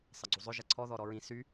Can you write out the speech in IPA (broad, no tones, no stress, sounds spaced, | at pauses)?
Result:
sˤ ɐ ɡ͡ǀ u zˤ ʏ ʒ ɐ ǀʰ ɔ ð ɔ ɾ ɔ ɹ ĩ s y